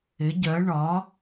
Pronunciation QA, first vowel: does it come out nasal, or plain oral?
oral